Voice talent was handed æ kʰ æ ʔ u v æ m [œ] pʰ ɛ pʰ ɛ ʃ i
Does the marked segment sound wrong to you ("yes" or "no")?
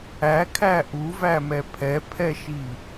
yes